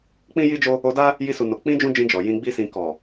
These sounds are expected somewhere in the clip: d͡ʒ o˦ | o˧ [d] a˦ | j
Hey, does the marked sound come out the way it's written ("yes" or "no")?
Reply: yes